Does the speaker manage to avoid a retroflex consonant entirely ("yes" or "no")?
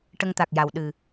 no